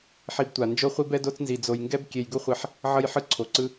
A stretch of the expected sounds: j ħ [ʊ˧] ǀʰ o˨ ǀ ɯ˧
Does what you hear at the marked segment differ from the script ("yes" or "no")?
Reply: yes